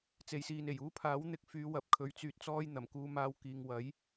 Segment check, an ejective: absent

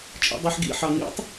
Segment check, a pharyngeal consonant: present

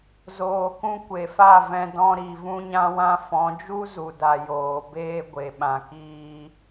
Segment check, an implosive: present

